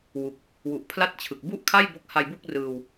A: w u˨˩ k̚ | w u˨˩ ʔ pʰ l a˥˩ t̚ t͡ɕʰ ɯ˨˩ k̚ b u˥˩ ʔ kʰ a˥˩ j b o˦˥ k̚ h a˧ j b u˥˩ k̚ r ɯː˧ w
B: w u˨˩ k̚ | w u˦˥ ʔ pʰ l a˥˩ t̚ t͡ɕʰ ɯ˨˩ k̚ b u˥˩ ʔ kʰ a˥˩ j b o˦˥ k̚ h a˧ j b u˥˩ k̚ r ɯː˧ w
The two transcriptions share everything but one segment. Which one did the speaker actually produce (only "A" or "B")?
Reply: A